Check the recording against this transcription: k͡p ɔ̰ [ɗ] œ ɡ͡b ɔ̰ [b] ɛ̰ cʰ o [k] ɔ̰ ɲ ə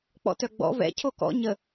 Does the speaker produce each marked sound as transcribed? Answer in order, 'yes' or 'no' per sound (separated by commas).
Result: no, no, yes